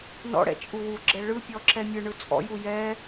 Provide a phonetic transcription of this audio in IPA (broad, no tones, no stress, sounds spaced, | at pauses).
n ɔ̰ ɽ ɛ̰ t͡ʃʼ u w u ɡ͡ǁ ɛ ɭ ɯ pʲ ɔ ǁ ɛ mʲ ɯ ɳ ɯ t͡sʼ ɔ̰ j u j ɛ